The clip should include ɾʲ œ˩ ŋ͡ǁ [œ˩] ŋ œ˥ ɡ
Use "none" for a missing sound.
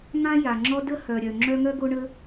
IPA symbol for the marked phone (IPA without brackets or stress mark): œ˦